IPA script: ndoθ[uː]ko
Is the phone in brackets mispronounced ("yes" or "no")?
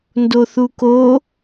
yes